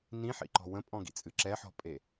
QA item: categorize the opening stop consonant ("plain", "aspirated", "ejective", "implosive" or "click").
click